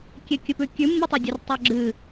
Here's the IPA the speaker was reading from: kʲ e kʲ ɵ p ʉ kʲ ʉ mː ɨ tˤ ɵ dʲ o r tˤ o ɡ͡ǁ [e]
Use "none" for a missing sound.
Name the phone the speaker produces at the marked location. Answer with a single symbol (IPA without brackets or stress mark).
ɨ